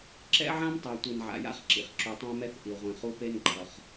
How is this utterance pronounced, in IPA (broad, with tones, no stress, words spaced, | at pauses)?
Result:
ǁɛ̰˦ʕã˦mtˤa˨ tʷi˨nʕa̰˨ja̰˦χǁḭ˨χ ǁu˨tˤã˦mɛ˦θ ʔi˨ʁʷĩ˨χu˦pe˦n ɡ͡ǃʌ˨χ